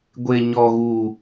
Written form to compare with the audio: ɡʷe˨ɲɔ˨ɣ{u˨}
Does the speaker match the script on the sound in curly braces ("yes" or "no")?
yes